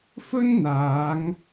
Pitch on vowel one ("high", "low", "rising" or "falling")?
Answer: high